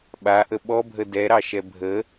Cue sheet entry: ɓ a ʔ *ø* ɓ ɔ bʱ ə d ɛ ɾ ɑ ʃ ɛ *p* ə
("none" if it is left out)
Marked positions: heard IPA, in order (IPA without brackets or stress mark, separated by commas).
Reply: ə, bʱ